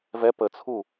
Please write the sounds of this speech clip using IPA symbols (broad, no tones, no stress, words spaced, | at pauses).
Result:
vɛ pət͡sʰu